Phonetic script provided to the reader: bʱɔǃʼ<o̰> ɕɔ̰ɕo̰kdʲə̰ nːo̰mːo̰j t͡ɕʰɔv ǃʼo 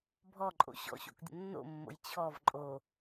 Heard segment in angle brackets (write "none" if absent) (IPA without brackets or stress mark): o̰